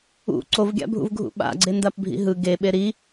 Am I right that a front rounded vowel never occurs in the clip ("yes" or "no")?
yes